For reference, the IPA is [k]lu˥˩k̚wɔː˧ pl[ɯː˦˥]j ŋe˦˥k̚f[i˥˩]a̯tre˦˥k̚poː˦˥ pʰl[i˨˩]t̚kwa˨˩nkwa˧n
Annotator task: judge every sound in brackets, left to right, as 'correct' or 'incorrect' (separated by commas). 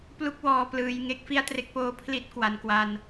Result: incorrect, correct, correct, incorrect